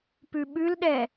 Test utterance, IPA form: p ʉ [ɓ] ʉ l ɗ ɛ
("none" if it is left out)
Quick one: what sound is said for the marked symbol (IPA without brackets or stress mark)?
ɓ